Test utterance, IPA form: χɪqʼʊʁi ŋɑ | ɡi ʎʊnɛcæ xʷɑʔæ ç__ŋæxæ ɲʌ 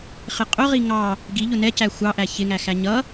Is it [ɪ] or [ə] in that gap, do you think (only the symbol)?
ɪ